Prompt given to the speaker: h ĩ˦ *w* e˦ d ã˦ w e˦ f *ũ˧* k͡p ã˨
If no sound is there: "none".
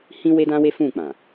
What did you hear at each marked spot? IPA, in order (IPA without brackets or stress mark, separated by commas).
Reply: w, ũ˦˨